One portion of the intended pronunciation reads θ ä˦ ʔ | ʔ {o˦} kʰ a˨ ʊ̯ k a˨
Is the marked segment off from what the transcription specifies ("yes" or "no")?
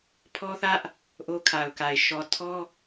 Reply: no